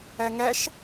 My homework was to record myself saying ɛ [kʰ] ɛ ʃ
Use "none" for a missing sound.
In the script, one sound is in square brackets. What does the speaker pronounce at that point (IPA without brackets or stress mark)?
ŋ